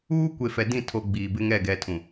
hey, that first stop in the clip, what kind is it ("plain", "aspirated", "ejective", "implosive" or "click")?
plain